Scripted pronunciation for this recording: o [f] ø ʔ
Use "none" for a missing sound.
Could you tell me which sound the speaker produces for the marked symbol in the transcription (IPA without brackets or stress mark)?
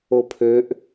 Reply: pʰ